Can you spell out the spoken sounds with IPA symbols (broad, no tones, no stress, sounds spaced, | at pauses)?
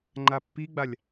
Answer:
ŋ͡ǃ a pː i ɡ͡b a lʲ